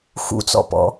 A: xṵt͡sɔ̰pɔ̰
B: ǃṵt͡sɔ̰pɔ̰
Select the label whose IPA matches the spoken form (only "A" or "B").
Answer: A